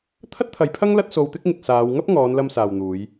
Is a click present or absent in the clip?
absent